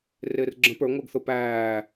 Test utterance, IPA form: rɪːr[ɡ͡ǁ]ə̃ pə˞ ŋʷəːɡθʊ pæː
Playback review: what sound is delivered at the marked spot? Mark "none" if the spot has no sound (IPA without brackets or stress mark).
ɡ͡ǁ